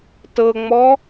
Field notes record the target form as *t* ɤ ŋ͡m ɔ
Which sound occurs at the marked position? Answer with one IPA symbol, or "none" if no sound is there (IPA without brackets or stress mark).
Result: t